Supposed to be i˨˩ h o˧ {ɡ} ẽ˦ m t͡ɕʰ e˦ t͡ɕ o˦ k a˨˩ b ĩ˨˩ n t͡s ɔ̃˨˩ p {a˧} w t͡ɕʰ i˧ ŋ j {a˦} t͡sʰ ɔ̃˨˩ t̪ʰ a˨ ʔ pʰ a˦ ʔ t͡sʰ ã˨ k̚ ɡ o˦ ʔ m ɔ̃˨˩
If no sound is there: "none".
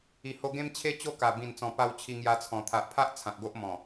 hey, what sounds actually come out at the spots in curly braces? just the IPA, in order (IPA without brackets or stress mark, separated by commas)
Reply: ɡ, a˧, a˧